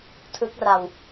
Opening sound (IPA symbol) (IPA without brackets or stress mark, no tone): tʰ